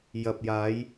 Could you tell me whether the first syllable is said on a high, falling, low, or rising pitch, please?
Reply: low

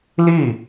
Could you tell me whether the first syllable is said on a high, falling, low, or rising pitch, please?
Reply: falling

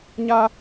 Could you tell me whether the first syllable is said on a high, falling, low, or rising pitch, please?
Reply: high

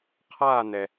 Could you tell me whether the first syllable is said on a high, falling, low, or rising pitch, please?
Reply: falling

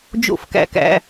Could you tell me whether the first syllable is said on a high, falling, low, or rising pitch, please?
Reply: falling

